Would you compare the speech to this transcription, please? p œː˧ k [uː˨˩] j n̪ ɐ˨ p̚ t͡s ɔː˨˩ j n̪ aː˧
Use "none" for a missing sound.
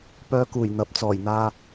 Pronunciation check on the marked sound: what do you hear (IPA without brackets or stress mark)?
uː˨˩